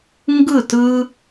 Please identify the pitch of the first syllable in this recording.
falling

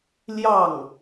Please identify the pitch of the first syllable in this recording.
falling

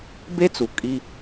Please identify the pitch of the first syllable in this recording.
high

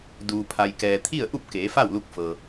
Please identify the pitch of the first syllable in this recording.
low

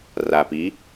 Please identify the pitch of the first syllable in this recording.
low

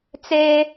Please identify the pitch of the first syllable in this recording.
high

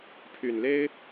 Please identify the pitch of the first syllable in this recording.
low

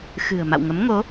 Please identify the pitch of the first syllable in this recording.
low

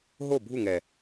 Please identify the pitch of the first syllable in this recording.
falling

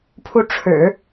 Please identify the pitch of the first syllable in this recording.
falling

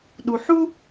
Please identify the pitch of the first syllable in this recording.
low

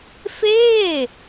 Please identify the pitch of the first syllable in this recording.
falling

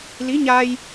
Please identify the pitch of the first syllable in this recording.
rising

